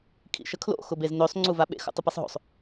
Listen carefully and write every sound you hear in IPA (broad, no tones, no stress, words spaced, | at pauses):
kʰḭʃəkʰlo̰ xʊbeznøsˤ ŋ͡ǀuvaɓḛx ṵtˤʊpisˤɦo̰sˤ